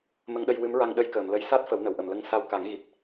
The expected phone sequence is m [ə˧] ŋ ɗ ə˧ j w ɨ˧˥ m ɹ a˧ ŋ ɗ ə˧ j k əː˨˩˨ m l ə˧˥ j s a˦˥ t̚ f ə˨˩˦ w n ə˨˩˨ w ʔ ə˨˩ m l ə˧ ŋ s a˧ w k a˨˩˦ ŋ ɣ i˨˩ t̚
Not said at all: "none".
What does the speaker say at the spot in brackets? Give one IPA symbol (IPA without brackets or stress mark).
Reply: ə˧